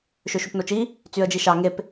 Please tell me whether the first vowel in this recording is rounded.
yes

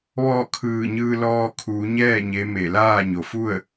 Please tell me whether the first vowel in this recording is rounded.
yes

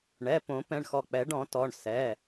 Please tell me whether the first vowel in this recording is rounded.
no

